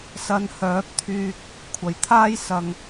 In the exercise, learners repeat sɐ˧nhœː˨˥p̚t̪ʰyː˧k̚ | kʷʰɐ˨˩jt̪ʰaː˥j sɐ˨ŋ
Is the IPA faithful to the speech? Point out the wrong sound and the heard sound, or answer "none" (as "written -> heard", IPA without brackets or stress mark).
none